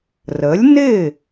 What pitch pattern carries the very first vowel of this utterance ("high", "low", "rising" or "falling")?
rising